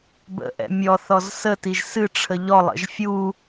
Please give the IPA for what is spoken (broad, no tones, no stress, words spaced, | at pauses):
bə̰ʔɛ̰ mʲɔθɔz sətiʒ sɨʈ͡ʂʰə ʎɔlˠə̰ʒ fʲu